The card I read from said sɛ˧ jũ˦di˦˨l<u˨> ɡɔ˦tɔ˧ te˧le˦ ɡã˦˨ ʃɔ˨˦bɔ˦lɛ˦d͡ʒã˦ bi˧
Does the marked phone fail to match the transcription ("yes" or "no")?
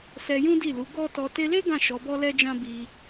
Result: yes